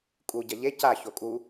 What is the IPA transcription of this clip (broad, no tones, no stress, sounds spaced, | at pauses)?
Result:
kʼ u ɟ ɐ ʎ e c a ç o kʼ u